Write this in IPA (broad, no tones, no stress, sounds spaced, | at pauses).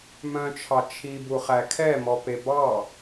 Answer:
m œ̃ t͡ʃʰ ɑ t͡ʃʰ i b u χ æ kʰ ɛ m ɔ p e b ɑ